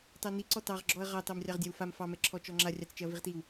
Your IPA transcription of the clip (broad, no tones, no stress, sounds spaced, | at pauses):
t ɑ n i ǀ ɔ t ɑ ʁ ɡ͡ǁ ɔ ɐ̯ ʁ ɑ t ɑ m rʲ ɑ ʁ dʲ a w f a m f ɑ m ɛ ǁʰ ɔ t͡ʃ ɔ ŋ͡ǁ a rʲ ɑ t͡s t͡ʃ ɛ ɐ̯ v i ʁ t i w